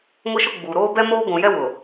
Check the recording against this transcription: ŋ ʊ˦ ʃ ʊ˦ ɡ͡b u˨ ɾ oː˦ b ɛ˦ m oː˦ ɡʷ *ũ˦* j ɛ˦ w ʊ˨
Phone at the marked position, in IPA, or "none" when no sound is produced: ũ˨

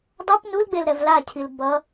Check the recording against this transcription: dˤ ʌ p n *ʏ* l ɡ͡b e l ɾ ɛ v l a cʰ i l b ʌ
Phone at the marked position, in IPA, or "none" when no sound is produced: u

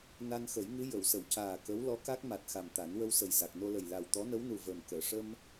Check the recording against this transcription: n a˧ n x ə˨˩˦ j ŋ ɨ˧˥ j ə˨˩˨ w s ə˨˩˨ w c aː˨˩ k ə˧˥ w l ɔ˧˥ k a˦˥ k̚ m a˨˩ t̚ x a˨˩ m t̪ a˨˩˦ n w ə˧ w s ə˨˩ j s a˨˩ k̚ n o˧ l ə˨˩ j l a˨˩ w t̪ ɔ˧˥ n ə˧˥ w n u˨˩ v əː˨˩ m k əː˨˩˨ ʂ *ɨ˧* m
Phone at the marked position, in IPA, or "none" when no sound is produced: ə˧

